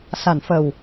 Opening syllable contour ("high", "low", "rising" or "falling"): low